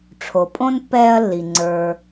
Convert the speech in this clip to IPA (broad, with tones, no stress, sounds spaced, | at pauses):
ʈ͡ʂʰ o˨ pʼ õ˥ n pː ɛː˦ ɐ̯ lː i˨ ŋ͡ǀ ə˞˨